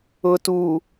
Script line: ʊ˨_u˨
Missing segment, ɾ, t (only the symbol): t